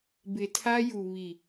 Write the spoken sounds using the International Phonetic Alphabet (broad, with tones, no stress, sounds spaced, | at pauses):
b ɪ˨ tʰ a˦ j u˨ β i˨